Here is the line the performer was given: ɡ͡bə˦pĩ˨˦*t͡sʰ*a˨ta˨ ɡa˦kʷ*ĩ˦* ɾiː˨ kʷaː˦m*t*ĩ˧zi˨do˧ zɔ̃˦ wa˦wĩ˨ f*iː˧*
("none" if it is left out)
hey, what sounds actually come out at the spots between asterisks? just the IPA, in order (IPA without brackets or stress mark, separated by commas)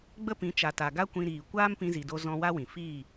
t͡ʃ, ĩ˧, p, iː˦˨